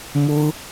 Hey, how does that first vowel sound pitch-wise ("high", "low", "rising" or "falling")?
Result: high